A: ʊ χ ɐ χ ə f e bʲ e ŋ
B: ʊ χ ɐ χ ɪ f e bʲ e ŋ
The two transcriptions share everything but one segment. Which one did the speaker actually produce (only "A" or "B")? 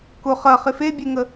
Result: B